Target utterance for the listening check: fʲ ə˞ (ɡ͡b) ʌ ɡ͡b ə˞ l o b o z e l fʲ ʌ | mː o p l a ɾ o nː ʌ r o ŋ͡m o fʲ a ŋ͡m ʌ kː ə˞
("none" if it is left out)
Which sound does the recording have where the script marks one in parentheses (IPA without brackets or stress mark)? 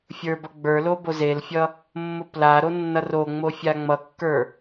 b